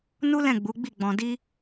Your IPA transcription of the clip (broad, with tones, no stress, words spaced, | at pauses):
nu˦lɛ̃˦˨ɡ͡bu˨˦ɡ͡bi˦˨ ɡ͡bɔ̃˧di˦